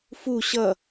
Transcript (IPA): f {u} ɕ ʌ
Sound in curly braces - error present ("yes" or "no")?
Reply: no